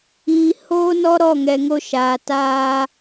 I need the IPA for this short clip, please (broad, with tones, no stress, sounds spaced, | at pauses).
iː˨ h oː˧ n ɔ˧ ɾ ɔ˦˨ ŋ ɛ˨ ŋ o˧ ʃ aː˨ t aː˦